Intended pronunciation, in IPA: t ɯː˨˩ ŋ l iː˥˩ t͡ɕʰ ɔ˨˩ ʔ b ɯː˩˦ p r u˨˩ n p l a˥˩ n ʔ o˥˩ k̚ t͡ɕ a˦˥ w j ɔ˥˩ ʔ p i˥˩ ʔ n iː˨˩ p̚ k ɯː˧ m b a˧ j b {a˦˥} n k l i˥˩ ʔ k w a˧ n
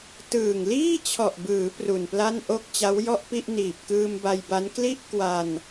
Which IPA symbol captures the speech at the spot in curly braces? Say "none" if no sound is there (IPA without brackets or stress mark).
a˦˥